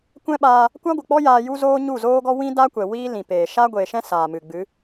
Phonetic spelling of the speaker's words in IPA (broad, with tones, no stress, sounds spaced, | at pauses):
kʷ ɛ̃˦ ɓ aː˧ | kʷ a˦ ɡʷ ɨ˨ k͡p ɔ˦ j aː˧ j u˦ z oː˦ ɲ u˦˨ z oː˦ ɡ ɔ˦ w ĩ˦ d a˦ kʷ ɛ˨ w iː˦ l ĩ˨ p eː˨ ʃ a˦ ɡʷ eː˨ ʃ ɛ̃˦ s aː˨ m ɨ˨ ɡ͡b ɨ˨˦